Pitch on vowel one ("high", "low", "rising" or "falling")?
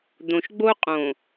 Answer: low